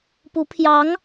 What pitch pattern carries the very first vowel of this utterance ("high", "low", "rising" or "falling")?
rising